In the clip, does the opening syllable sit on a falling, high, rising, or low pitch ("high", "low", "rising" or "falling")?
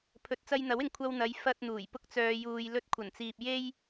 rising